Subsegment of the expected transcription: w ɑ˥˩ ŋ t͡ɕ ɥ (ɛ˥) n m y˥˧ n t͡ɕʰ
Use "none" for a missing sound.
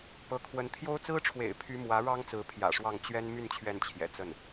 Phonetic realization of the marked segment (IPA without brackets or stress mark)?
ɛ˥